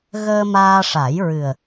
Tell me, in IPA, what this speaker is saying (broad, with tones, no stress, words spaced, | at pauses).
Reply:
ɣəː˧ maː˧ʂa˨˩˦jɹɨ˨˩ə̯